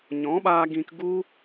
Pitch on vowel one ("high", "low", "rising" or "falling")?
rising